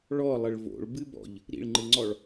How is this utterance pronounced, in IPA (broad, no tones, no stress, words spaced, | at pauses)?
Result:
ɭɔlˠəɭ vo̰ɭbɨbɔ̰ʎ | ɾḭɭŋ͡ǃɨŋ͡ǀɔɭ